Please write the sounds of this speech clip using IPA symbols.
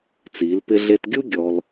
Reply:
t͡s iː˩˧ l p ɪ˧ ɮ e˧ t ɡʲ u˥ ɡʲ ɔ˧ l

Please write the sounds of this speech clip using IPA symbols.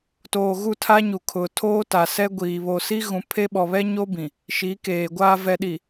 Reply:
t oː˨ ɣ u˦˨ tʰ a˦ ɲ u˨ kʰ ʊ˨ tʰ oː˦ t a˨ s ɛ˦ ɡʷ iː˨ β o˨ s i˦ ɣ ũ˨ pʰ e˦ ɓ ɔ˨ β ɛ˦ ɲ o˦ b ĩ˨ | ʃ i˨˦ k eː˨ ɡʷ aː˨ v ɛ˨ ɗ i˨

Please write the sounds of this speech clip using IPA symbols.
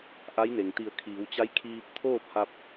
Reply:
ʔ a˧˥ j n e˩ ŋ t̪ i˧˩ ə̯ kʰ iː˩˧ w t͡ɕ a˧˥ j kʰ iː˧ p̚ t̪ʰ oː˥˨ p̚ h a˧ p̚

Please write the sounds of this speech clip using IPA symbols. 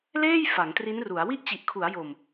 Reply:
l eː˥˩ j f a˩˦ ŋ t r i˦˥ n r u˩˦ a̯ w i˥˩ ʔ t͡ɕ i˨˩ ʔ kʰ u˩˦ a̯ j o˨˩ m

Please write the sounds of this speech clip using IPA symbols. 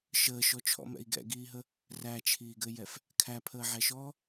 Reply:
ʃ əː ʃ ɔ t͡ʃʰ ɔ̰ m ɛ̰ i̯ ɡ ɛ̰ ɡ iː ɦ ə | r æ t͡ʃʰ iː ɡ ɘ j ɛ f | kʰ æ pʰ əː ʕ ɛ ʃ ɔː

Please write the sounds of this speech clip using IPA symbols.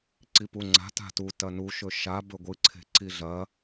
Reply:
ǀ i p u ŋ͡ǀ a̤ t a̤ t u t ɐ n u ʃ ɵ ʃ a b ɵ ɡʷ ɨ ǀʰ e̤ ǀ i ɮ ɐ

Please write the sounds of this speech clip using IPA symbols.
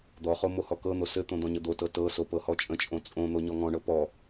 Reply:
d̪ ɔ χ o m o h ɔ k ɤ n̪ o s ɘ t̪ õ d̪ ɔ̃ ɲ ə d̪ o t ɤ t ɤ s o p ɤ h ɔ t͡ʃʼ ə̃ t͡ʃʼ õ t͡sʼ õ n̪ o ɲ ɔ ŋ ɔ̃ ɳ ɤ p ɔ

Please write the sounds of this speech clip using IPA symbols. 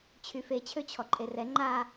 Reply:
t͡ɕʰ y f e t͡ɕʰ ø t͡ɕʰ ɔ ǃʼ e r ɛ ŋ͡ǃ a

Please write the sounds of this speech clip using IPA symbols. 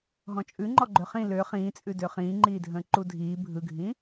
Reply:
ɦ ɔ̃ t͡ʃʼ ʉ ŋ͡ǃ ɔ ɡ͡ǃ ø χ ĩ l ø χ ĩː t͡sʼ ʉ d ø χ ĩː ŋ͡ǃ iː dʱ ə̃ː ǃ u dʱ iː bʱ ɯ ɡʱ ĩ

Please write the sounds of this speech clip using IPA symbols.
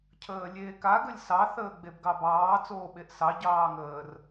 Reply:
cʰ əː lʲ eː k a ɡ ə lʲ s ɑ θ əː ɡ͡b e b ɡ ɑ b ɑː t͡s oː ɓ e ʔ s ɑ ɟ ɑː ŋ əː r

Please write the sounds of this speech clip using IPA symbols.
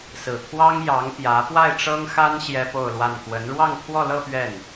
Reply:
s ɹ̩˨˩ t̪ʰ w ɑ˥ ŋ j ɑ˧˥ ŋ p j ä˧˥ p w a˥˩ ɪ̯ ʈ͡ʂ ɤ˥ ŋ x a˥ n ɕ j ɛ˥ p o˥˧ ʊ̯ l w a˥˩ n k w ə˧˥ n ɻ w ɑ˥˧ ŋ t̪ʰ w ɔ˥˧ l ɤ˥˧ p ɥ ɛ˥˩ n

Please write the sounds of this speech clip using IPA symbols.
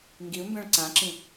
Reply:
ŋ ɡ i u̯ m b ɛ̃ ɭ ǀ ã ǁ ĩ

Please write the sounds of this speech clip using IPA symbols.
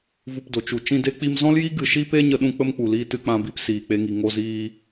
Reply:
v u˧ p d o˨ t͡ʃ u˨ t͡ʃ ĩ˧ d e˦ k͡p i˧ m z ɔ̃˦ l j i˦ ɡ ɨ˨ ʃ i˧ p e˧ ɲ ə˦ ɗ ũ˦ k͡p ə˦ m k͡p u˨ l iː˧ t ɨ˧ k͡p ã˧ b i˦ p s iː˨ k͡p e˧ ŋ i˨ ŋ o˧ z iː˧

